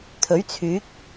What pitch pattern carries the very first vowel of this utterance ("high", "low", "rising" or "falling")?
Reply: rising